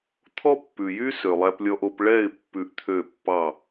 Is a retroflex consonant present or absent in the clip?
present